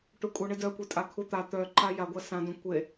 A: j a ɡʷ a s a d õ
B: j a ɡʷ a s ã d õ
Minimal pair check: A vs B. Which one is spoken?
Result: B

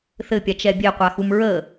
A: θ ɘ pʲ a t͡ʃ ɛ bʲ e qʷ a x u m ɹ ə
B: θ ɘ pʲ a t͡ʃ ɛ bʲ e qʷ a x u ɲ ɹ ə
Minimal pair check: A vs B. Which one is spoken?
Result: A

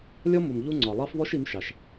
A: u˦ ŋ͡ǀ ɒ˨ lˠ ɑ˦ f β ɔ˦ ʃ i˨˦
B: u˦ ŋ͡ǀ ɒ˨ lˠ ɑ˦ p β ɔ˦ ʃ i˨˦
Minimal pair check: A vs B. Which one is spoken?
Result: A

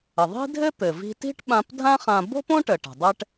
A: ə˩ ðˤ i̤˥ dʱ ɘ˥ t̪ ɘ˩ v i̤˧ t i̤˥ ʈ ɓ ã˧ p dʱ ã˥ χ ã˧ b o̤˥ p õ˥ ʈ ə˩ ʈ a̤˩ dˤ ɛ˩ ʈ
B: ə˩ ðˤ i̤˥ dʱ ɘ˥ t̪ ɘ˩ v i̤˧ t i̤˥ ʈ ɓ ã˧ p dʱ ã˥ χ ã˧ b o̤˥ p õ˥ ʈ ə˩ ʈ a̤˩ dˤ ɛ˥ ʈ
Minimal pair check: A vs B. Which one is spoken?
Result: B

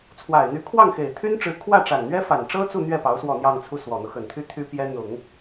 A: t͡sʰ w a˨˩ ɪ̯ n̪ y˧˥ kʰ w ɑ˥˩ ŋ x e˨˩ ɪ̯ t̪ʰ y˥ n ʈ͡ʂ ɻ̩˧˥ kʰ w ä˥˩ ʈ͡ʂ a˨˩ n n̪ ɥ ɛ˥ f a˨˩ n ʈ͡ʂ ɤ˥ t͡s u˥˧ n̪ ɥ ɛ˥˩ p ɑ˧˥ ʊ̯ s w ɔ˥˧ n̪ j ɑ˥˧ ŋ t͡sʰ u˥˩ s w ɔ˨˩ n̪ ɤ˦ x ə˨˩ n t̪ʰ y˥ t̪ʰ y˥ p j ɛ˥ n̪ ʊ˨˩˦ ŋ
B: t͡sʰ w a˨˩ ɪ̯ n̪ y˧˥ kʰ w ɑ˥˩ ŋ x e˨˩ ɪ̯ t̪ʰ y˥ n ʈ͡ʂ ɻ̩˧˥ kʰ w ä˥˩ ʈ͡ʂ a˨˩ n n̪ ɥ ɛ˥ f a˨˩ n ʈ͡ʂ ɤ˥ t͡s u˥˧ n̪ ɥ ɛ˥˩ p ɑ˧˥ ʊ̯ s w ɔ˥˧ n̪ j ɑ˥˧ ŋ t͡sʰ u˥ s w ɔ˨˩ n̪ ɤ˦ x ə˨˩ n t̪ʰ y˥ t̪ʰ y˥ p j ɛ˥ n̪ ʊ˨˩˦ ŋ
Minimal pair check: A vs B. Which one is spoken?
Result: A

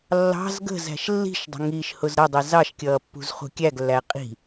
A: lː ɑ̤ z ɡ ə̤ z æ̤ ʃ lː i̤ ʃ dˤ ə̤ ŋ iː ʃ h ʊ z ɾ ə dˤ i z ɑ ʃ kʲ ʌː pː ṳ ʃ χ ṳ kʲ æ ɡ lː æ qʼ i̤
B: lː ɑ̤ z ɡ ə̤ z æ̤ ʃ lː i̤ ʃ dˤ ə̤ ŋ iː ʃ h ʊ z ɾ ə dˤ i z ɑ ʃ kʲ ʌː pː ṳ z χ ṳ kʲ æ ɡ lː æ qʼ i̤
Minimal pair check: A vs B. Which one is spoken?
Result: B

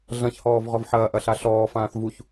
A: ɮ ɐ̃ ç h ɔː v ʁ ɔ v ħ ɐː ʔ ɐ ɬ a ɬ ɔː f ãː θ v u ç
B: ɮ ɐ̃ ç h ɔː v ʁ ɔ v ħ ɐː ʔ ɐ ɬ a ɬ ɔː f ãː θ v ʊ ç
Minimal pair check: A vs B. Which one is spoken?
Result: A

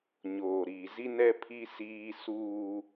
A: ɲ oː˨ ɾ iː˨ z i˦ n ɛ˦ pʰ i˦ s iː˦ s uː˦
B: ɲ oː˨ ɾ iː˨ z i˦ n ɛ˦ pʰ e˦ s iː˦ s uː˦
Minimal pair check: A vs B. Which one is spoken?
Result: A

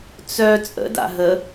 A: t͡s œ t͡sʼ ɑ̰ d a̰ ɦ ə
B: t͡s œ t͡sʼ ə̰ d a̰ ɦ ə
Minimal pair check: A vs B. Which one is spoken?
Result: B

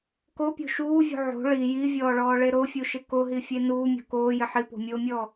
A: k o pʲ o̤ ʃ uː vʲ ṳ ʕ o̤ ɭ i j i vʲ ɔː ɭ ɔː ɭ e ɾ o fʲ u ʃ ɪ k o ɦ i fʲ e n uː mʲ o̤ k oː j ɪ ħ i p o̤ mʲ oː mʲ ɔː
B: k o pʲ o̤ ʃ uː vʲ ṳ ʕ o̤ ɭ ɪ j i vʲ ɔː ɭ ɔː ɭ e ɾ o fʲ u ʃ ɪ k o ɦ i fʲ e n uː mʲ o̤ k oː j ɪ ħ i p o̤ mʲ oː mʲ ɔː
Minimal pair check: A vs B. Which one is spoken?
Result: A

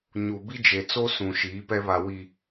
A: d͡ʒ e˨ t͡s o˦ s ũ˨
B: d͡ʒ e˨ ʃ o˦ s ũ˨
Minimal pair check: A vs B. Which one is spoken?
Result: A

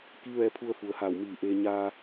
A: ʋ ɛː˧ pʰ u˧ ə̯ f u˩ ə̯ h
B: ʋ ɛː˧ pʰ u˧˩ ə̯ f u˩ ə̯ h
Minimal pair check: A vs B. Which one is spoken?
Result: A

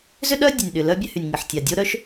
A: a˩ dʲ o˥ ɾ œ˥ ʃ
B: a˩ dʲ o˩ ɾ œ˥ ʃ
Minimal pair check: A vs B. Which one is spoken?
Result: A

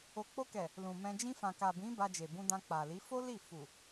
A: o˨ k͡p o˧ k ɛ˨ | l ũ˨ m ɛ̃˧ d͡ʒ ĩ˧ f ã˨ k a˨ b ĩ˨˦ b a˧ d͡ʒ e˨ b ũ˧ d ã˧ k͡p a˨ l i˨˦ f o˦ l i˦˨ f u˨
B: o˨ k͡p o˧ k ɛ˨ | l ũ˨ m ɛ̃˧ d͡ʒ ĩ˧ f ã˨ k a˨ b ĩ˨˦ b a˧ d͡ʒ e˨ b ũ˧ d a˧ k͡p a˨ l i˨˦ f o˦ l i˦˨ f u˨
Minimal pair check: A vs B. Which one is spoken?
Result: A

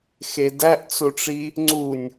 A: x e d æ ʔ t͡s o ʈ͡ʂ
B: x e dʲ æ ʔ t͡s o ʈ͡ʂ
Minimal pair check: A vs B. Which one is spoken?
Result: A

